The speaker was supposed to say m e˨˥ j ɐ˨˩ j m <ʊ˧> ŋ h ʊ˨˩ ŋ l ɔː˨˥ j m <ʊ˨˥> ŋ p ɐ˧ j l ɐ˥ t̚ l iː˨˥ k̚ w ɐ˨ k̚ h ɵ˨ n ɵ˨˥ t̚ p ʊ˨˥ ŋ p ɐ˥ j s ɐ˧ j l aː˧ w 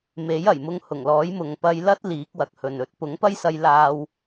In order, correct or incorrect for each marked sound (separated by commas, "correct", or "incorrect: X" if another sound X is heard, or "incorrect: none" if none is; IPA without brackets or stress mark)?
correct, incorrect: ʊ˨